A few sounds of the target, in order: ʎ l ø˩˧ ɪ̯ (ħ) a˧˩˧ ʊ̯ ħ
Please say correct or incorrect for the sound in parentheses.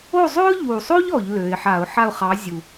correct